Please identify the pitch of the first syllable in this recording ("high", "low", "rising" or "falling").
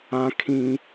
high